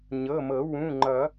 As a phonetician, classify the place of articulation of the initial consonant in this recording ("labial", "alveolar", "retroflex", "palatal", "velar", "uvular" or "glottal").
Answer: palatal